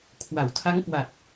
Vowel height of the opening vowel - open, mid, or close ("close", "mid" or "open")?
open